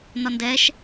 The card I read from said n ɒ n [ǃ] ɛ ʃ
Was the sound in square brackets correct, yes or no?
no